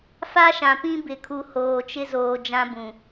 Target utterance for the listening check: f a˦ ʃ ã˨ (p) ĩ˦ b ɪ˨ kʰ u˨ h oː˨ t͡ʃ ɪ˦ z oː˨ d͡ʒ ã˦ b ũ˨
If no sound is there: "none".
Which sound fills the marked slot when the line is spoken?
p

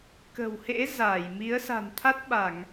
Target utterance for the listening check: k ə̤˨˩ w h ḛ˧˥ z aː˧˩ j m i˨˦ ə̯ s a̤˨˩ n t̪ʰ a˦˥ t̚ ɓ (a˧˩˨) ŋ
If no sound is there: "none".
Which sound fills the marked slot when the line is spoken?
a˧˩˨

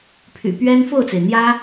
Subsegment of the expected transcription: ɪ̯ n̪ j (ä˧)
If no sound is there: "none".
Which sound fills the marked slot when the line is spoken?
ä˥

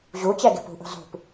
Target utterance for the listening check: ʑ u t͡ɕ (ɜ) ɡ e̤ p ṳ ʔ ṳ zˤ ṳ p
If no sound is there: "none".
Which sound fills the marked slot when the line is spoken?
ɛ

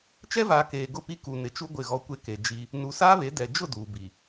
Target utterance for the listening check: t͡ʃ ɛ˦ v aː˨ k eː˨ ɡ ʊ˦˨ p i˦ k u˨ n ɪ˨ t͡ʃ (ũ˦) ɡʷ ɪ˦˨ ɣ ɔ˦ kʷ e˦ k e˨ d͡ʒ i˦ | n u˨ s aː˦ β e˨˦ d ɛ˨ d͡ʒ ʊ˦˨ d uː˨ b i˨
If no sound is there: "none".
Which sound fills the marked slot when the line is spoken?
u˦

